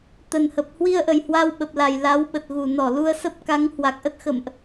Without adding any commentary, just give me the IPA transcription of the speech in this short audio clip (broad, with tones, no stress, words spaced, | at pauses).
t̪ə˨˩nhə˨˩p̚ hwi˧ə̯ʔə˨˩j hwa˧wɓə˨˩p̚la˨˩j la˨˦wɓə˨˩t̚ɣu˧˩ nɔ˧˩ lu˧ə̯sə˦˥p̚ ka˨˦ŋ hwa˨˩k̚ʔə˦˥t̚xə̰˧˨mʔ